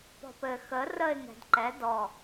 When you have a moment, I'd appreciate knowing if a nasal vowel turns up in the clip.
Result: no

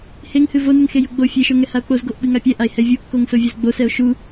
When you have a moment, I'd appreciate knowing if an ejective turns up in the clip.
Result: no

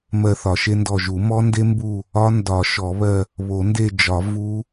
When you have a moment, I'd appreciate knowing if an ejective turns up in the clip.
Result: no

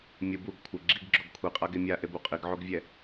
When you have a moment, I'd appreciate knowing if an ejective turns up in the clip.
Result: yes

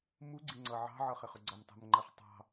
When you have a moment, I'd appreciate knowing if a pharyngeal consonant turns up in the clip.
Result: yes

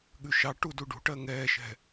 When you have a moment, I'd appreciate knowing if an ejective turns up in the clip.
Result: no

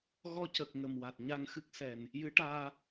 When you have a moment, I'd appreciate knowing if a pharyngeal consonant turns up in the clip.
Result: no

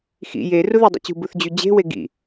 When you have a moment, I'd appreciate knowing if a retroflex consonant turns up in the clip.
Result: no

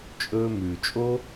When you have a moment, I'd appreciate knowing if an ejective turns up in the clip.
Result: yes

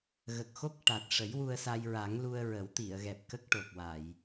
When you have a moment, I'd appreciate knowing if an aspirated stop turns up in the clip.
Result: no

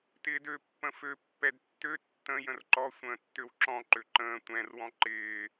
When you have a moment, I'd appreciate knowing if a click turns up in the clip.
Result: yes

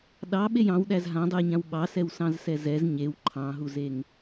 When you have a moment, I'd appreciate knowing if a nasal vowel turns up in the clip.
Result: yes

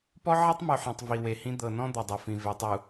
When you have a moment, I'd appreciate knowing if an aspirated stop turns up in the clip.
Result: no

